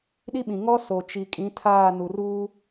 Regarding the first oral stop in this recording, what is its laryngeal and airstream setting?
implosive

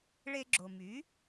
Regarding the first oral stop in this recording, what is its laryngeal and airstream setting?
click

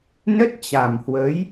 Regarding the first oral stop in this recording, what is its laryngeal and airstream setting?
plain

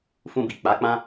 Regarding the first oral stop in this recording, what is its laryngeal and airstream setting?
plain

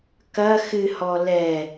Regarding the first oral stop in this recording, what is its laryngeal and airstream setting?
plain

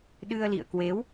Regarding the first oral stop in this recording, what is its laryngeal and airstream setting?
implosive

